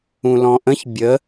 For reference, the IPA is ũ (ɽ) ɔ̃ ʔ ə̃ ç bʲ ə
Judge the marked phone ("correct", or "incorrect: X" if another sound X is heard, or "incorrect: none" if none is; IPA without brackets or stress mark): incorrect: l